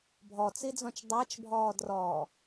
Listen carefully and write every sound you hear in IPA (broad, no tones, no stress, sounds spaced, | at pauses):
bʱ ɔ t͡s i d͡z ɔ̃ t͡ʃ dˤ a t͡ʃ bʱ ɔː d r ɔː